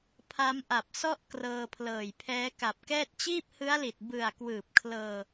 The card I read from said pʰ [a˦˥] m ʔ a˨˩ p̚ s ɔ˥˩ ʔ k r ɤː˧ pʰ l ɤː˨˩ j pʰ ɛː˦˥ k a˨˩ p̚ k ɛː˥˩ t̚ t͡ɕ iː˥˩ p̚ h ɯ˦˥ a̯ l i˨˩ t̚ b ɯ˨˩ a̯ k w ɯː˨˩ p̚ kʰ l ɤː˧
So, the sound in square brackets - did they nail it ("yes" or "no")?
yes